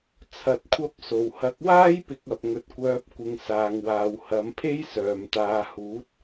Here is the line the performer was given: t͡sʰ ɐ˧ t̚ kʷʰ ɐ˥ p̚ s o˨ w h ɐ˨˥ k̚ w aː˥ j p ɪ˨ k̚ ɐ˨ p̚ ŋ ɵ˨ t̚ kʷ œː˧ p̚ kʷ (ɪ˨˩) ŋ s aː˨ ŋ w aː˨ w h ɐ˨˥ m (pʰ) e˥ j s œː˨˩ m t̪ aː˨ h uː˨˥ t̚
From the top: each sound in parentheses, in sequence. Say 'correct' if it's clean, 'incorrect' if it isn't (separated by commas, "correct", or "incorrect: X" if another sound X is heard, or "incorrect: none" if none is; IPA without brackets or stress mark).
incorrect: ɪ˧, correct